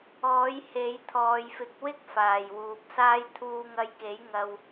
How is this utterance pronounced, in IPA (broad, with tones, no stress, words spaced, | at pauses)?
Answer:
ɔː˨˥j he˨˥j t̪ʰɔː˨jfɪ˨˥k̚wɪ˥k̚ faː˨˩jwuː˨p̚saː˥j t̪ʰuː˧ŋɐ˧jke˨˥j ŋɐ˨w